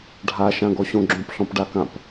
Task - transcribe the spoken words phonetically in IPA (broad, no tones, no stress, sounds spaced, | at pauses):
ɖʱ a ʃ ã ɡ ɔ ɕ õ ɡ͡ǁ õ p ɬ ɔ̃ p ɖ a k ã p